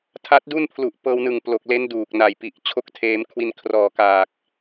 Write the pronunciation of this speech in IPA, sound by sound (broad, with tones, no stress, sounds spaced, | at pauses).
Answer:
tʰ a˦˥ t̚ d u˥˩ n pʰ l u˨˩ ʔ p ɤː˧ w n ɯ˨˩ ŋ p l o˨˩ k̚ l e˦˥ n d uː˨˩ k̚ n a˨˩ j p i˨˩ ʔ t͡ɕʰ o˦˥ k̚ tʰ eː˧ m kʰ w i˧ n kʰ r ɔː˨˩ k aː˨˩ k̚